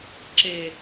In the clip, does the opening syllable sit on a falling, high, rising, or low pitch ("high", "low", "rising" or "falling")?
low